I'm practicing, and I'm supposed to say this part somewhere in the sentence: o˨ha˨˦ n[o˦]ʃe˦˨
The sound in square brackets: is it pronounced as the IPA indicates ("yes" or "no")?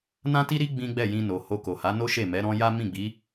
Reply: yes